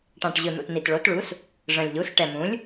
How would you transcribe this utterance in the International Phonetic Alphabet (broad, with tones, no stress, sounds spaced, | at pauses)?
ʈ ɑ̃˨˩ ʈ ʑ ɯ˨˩ n̪ ṵ˨˩ t n̪ i˨˩ t ɭ o˩˥ t ɭ u˩˥ s | ʐ ə̃˨˩ lʲ ʎ u˩˥ s ʈ ɛ˨˩ m ũ˩˥ lʲ